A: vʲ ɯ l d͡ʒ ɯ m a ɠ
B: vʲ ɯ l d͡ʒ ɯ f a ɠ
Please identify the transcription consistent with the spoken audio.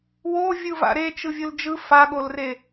B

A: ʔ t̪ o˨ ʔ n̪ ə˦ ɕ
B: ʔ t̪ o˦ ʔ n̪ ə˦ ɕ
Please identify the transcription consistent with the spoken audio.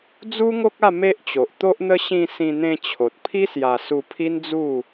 B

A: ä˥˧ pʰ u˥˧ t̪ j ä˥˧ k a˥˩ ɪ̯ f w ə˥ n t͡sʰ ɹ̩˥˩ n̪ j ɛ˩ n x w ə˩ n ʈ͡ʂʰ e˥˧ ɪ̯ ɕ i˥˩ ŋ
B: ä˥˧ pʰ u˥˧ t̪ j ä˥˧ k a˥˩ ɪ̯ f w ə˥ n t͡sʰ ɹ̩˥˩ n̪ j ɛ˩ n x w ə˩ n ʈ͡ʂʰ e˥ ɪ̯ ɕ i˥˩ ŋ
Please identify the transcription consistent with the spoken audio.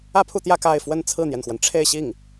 A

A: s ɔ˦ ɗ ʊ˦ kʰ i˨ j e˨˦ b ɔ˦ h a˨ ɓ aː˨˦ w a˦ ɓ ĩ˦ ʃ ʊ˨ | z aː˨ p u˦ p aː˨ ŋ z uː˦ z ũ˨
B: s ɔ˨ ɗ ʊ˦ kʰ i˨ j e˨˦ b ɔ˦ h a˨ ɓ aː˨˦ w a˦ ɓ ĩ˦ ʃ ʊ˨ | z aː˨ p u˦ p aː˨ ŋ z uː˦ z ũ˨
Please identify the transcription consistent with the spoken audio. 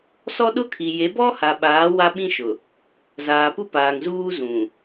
A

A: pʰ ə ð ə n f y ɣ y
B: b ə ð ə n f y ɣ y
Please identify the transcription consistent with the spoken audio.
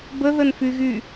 B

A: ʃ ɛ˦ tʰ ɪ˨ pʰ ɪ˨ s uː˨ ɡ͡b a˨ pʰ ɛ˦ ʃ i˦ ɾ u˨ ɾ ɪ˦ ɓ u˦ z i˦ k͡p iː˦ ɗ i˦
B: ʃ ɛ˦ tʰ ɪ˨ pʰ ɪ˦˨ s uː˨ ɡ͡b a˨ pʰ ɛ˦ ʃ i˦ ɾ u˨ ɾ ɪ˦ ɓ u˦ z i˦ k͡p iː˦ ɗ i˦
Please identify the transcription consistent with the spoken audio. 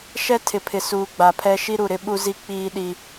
A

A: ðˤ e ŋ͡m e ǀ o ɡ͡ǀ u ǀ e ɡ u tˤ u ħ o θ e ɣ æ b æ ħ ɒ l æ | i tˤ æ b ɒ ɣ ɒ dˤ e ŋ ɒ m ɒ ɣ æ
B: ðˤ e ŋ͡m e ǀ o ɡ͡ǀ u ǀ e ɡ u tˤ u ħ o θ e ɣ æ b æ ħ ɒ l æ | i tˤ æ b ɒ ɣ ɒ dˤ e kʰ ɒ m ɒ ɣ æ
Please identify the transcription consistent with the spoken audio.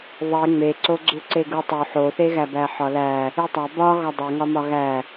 A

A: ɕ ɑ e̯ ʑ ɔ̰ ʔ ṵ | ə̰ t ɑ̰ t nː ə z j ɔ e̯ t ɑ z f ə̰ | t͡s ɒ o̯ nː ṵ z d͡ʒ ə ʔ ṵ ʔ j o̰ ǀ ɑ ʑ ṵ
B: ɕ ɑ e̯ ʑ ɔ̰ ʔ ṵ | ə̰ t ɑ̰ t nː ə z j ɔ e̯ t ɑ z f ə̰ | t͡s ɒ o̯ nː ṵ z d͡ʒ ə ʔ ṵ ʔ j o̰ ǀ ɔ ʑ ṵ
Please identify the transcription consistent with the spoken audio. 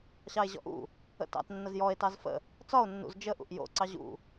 A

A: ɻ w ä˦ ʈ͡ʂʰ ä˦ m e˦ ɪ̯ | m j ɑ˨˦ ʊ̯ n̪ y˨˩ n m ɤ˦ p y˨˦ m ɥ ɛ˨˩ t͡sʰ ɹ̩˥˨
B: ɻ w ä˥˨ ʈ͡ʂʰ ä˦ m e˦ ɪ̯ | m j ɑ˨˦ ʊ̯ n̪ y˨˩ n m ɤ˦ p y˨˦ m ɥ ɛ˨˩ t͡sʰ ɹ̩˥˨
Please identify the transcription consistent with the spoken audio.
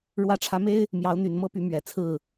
B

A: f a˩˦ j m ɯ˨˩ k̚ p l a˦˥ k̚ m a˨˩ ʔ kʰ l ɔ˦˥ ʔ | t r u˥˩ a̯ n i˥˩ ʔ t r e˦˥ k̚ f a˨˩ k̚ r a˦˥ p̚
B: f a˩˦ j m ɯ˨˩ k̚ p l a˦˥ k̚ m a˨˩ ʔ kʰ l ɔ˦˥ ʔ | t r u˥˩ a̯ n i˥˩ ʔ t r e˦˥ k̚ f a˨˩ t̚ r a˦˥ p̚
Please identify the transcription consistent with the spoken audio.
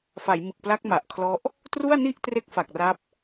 A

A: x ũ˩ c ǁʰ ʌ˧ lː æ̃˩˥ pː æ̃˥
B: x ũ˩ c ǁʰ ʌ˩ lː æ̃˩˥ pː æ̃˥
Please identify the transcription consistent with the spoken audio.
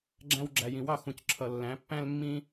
B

